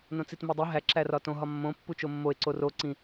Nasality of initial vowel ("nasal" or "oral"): nasal